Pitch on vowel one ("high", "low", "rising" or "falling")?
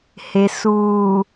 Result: low